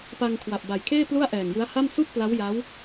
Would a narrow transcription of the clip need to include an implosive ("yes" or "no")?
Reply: no